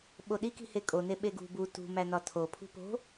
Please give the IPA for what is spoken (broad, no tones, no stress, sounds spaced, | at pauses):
ɓ o ɗ i k i̤ h e kʼ o n e ɓ e ɡ ṳ b u t ṳ m æ n ɒ tʰ o pʰ ṳ p o̤